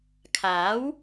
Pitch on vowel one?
rising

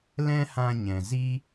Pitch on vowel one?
high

